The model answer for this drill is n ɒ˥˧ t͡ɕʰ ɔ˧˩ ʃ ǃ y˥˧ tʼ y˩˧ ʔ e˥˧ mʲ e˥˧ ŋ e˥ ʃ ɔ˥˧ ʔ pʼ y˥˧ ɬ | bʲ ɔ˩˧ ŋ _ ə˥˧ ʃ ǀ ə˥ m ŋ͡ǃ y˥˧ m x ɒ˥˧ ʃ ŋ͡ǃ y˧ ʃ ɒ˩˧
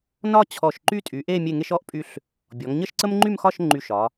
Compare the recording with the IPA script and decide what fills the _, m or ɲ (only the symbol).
ɲ